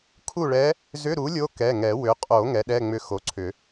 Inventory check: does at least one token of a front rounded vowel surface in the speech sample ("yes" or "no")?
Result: yes